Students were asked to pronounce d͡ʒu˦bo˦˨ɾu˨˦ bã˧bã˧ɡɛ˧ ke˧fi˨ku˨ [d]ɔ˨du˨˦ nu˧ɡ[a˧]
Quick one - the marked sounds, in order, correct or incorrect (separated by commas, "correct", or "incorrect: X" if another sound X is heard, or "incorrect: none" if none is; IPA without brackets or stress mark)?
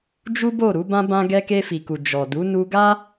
incorrect: d͡ʒ, incorrect: a˦